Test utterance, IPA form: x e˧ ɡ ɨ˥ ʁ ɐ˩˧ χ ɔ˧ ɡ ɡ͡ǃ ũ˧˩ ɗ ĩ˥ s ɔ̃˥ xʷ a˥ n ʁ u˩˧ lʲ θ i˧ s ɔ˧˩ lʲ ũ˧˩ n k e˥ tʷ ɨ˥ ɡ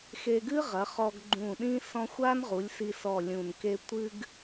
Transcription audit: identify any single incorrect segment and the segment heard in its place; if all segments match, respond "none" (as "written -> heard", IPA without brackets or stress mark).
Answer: θ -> s